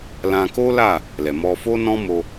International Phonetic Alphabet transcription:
lã˧ko˦la˦˨ | lɛ˨mɔ˧fo˦ nɔ̃˦mo˧

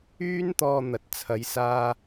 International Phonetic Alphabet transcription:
yː˥nt̪ɔː˧ n̪ɐ˨t̚t͡sʰɐ˨˧j saː˧

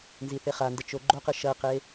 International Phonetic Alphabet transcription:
nziθeχandə t͡ʃoɡ͡ǃoqɯ ʃɐqe

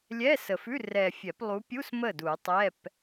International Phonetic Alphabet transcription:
lʲɛ˧˥˧sə˨fʉ˧˥˧ rɛ˨fʲɛ˨˩˦plˠu˨˦pʲu˧˥˧s mə˥˩du˨˩˦tˤɛ˧˥˧p

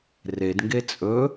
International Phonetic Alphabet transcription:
redŋɡe t͡sʼɵ

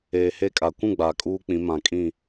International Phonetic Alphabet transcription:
eː˨he˦kʼa˨ kʷũ˦˨ ɡ͡baː˨kʼuː˦k͡pĩ˨˦ mã˨kʼĩ˦˨

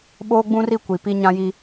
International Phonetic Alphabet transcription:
ɓoː˦ɡ͡bũ˦ri˦˨ kʷi˨pi˦ ɲã˦ji˦

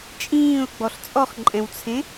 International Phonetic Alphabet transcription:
t͡ʃʼĩːʊ̯ɡ͡bɔɬ t͡sʼɔχǃʼɛ̃wt͡sʰẽ

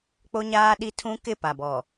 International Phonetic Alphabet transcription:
k͡po˦ɲaː˦ɗi˦ tʰũ˦kɪ˦˨pa˨bɔ˨

